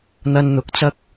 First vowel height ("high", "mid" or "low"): low